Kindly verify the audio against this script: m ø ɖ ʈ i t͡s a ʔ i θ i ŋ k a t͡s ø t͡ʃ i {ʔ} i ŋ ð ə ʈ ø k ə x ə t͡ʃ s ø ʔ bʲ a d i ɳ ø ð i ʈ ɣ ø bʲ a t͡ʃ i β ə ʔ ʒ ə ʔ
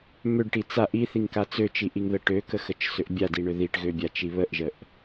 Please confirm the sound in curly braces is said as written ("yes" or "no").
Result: yes